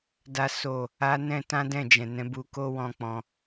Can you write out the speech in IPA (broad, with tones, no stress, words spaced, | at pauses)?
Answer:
da˦so˦˨ | a˧ nɛ̃˦ tã˦dɛ̃˦˨ d͡ʒɛ̃˨nɛ̃˨˦bu˧ko˦ wɔ̃˦k͡pɔ̃˧